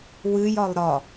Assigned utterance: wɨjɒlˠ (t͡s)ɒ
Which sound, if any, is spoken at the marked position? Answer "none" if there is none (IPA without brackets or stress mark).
ɾ